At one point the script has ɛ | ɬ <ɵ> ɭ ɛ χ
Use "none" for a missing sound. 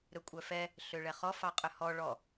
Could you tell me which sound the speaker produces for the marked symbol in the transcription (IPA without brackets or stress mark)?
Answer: ø